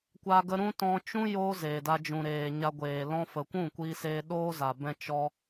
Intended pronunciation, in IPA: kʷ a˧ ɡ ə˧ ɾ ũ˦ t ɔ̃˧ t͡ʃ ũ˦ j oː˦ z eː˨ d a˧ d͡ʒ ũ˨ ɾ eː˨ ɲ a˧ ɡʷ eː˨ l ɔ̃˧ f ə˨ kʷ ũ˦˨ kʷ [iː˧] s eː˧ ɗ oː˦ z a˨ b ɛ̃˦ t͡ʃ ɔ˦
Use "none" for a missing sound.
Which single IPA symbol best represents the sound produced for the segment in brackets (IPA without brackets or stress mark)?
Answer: iː˧